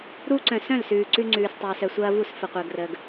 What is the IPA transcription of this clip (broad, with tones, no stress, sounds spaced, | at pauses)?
ɾ u˦ ǀ œ̃˨ s œ̃˦˨ l s ʉː˨ ǀ ʉ˦ ŋ͡ǀ ʉː˨ s tˤ ɐː˨ s œ˨ sʷ ɐː˦ v u˦˨ s f ə˨ qʷ əː˨ ɡ r əː˨ ɡ